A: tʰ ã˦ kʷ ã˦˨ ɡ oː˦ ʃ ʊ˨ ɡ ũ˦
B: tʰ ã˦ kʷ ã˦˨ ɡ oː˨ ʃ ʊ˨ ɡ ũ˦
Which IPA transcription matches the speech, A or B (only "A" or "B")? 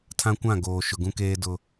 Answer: B